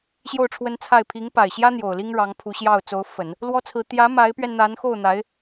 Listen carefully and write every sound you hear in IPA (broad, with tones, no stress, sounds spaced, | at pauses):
ɕ j o˥˩ ʊ̯ ʈ͡ʂʰ w ə˥ n t͡sʰ a˥˩ ɪ̯ pʰ i˧˥ ŋ p a˨˩ ɪ̯ ɕ j ä˥ n̪ j o˨˩ ʊ̯ l i˥ ŋ ɻ ɑ˧˥ ŋ pʰ u˧˥ ɕ j ɑ˥˩ ʊ̯ t͡s o˧˥ ʊ̯ f ə˨˩˦ n | l w ɔ˥ t͡sʰ ɹ̩˧˥ t̪ j ä˧˥ m a˧˥ ɪ̯ p ɥ ɛ˧ n n̪ a˧˥ n x o˥˩ ʊ̯ n̪ a˧˥ ɪ̯